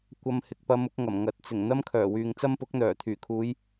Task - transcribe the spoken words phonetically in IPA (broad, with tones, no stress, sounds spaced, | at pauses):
kʷ ɐ˧ m h ɪ˨ k̚ p ɐ˧ m ʊ˧ k̚ ŋ ɐ˨˩ m ŋ ɐ˨˥ t̚ t͡s ɪ˨˩ ŋ n̪ ɐ˥ m kʰ œː˨˩ w yː˨ ŋ t͡s ɐ˥ m p ʊ˨˥ k̚ n̪ œː˨˩ t̪ʰ yː˨˩ kʰ uː˨˧ j